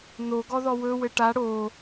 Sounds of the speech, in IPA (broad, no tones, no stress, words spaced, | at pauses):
noɡɔðɔ wɵwɘ ʈa ɽo